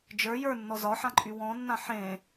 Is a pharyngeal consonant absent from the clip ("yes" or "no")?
no